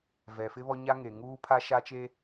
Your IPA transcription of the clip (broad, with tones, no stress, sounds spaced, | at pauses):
v ɛ˨ f ɪ˦ β ɔ˦ ɲ a˦ ŋ e˨ ŋ uː˦ pʰ a˦ ʃ a˦ t͡ʃ e˦